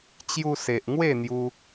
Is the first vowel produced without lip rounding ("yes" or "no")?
no